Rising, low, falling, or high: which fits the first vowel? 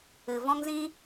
low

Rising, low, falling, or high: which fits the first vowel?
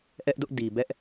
high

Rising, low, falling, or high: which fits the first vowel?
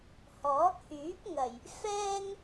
rising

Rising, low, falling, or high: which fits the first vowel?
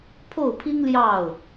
falling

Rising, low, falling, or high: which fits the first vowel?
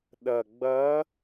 low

